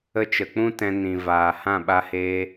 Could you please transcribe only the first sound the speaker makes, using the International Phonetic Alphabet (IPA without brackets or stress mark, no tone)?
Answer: ə